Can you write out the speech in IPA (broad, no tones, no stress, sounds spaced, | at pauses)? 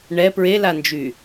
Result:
ɳ ɛ p ɹ e l a n d͡ʒ y